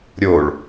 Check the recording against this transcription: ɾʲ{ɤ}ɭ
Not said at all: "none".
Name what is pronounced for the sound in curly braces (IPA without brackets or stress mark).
o